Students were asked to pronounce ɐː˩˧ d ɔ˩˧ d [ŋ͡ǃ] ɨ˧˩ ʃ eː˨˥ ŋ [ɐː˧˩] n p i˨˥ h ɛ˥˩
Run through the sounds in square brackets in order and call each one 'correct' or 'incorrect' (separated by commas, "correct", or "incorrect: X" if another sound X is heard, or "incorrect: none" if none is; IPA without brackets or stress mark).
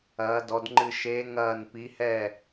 correct, correct